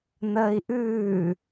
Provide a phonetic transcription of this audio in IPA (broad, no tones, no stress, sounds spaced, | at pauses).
n̪ əː i̯ ʔ ʉː